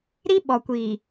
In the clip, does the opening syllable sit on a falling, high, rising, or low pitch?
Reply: high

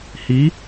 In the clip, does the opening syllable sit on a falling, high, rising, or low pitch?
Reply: rising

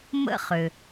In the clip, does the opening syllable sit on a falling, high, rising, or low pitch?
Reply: high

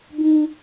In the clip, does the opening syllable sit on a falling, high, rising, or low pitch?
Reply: high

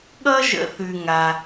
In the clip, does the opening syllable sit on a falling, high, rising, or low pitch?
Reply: high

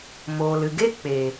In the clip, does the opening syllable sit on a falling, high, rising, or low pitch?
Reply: low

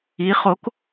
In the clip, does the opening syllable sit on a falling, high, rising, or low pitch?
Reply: rising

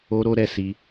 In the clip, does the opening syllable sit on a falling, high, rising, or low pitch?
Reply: high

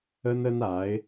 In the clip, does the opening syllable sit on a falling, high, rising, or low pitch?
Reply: high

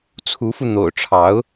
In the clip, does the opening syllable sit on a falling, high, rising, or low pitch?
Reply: rising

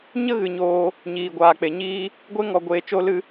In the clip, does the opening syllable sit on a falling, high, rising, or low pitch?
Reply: high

